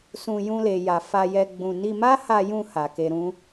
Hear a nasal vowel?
yes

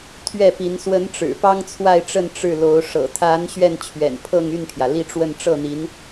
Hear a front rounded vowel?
yes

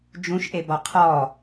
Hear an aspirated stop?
yes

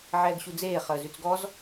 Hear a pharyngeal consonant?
yes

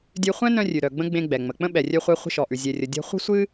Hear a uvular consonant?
yes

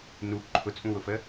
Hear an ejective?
yes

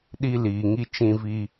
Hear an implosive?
yes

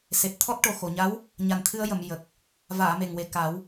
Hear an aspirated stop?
yes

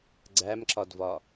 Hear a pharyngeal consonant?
no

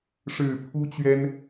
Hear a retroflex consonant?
yes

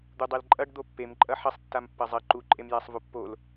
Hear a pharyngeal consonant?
yes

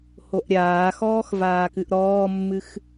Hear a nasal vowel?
no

